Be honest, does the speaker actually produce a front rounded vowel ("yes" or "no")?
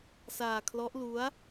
no